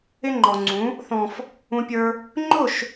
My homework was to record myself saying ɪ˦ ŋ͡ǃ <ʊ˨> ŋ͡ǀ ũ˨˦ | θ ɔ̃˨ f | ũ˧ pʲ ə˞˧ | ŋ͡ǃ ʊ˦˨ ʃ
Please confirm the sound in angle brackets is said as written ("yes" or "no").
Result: no